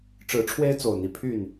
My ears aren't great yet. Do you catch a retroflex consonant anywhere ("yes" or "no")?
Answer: yes